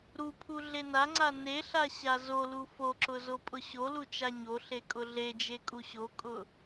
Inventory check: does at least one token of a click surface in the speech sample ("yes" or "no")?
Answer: yes